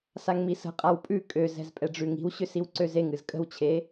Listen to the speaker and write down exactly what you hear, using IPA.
s a ŋ m i s ə̤ qʼ a w pʼ ʉ kʼ ø z ɛ̤ z pʼ ɛ ɖ͡ʐ ʉ ŋ i̤ w ɕ ʏ s i w ǀ ø z e ŋ ɨ z kʼ ə̤ w t͡ɕʰ e

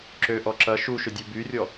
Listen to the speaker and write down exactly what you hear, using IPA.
ǁ ø ʔ ɔ ǁ ɐ ʃ u ʃ ʏ dʲ u b y rʲ ɔ

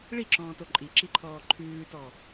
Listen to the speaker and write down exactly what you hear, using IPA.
ɭ i ǁ ɔ̃ː t o ǃʼ i ǁ i ǃʰ ɔː ǃʰ ʉː t ɔ

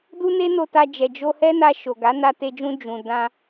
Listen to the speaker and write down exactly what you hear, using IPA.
d u˦ n e˦ n o˧ t a˧ d͡ʒ ɛ˨ d͡ʒ o˧ h ɛ˦ n a˧ ʃ o˨ ɡ a˨˦ n a˧ t e˧ d͡ʒ ũ˧ d͡ʒ ũ˨ d ã˧

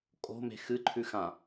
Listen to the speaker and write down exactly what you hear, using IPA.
kʼ o̤ m e̤ x ɨ ǃʰ ʉ x ã

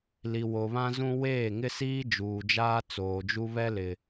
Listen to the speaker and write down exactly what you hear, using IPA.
l i˨ w o˨ β ã˦ z ũ˦ w eː˦˨ ŋ ɪ˦ s iː˦ d͡ʒ uː˨ d͡ʒ aː˦ t͡s oː˨ d͡ʒ u˦ β ɛ˦ l ɪ˨

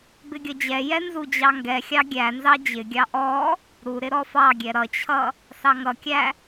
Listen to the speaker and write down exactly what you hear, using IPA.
b ɪ ɡʲ ʌ d͡ʑ ɛ j ɛ n z u d͡ʑ ɑ ŋ ɡ ɛ xʲ ɑ ɡʲ æ n z ɑ d͡ʑ ɪ ɡʲ ɑ ʔ ɔ | ɾ u ɾ ɪ ɾ ɔ f ɑ ɡʲ ɛ ɾ ʌ t͡ɕʰ ʌ | s ɑ ŋ ʌ kʲ æ

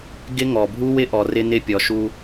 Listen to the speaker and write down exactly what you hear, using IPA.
ɡ ɪ˦ ŋ ɔ˨ bʱ u˦ w ɪ˦ ʔ ɔ˨ r ɪ˦ n ɪ˦ pʲ ɔ˨ ʃ u˦

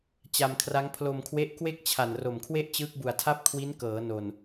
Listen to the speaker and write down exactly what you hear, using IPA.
t͡ɕ a˧ m kʰ r a˦˥ ŋ pʰ l o˧ m kʰ w e˦˥ ʔ k w e˥˩ k̚ t͡ɕʰ a˨˩ n r o˨˩ m kʰ w e˥˩ ʔ t͡ɕ ɯː˦˥ k̚ b u˨˩ a̯ tʰ a˥˩ p̚ kʰ w i˦˥ n k ɤː˩˦ n o˨˩ n

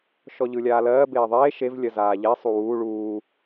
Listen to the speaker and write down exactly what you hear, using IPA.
ʃ ɔ ʎ ɯ lʲ aː l ɜː b eː ðˤ eː ʃ e v lʲ ɜ z aː ʎ e sˤ u w uː ɭ uː

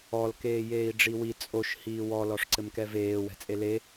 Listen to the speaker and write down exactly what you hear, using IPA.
ɔ l k eː j eː i̯ ɖ͡ʐ i w i t͡sʼ o ʃ h iː w ɔ l ɔ ʂ ǀ ɘ m k ɛ v eː w ɛ̤ t͡sʼ e l e

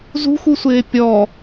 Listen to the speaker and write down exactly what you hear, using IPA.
z ṳ x u sʷ ɪː pʲ ɔ

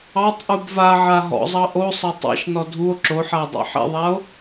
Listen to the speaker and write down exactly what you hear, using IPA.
ɑ tˤ ʔ u b v a ʕ a ɦ ɔ̰ zˤ ɑ ʔ o sˤ ɐ tˤ ɑ̰ ʃ n ɔ dʱ u o̯ ǁ o ħ a o̯ dˤ ɑ̰ ħ ḛ ðˤ a o̯

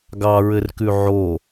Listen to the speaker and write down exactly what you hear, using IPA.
ɡ ɑ ɹ ɘ r k ʉ ʕ o

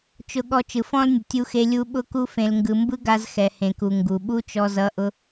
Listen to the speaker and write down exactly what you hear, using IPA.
t͡ʃ ʊ˧ ɠ ɔ˧ t͡ʃ ɯ˨ f ɔ̃˦ l nʲ ʊ˨ tʲ u˦ x e˦ lʲ u˦ ɓ ʊ˦ k u˦ f ẽ˧ l ŋ ɡ ɯ˧ m b ɯ˦ ɡ a˧ z x ɛ˨ h ẽ˨ k u˨ ŋ ɡ u˨ ɓ u˦ t͡ʃ ɔ˧ z ʌ˧ ʔ ʊ˦

